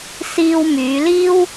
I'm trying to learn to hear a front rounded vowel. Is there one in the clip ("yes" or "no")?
yes